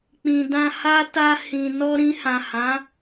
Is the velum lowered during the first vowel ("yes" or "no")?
yes